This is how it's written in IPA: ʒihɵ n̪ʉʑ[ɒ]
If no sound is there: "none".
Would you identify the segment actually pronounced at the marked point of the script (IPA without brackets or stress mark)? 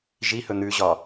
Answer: ɒ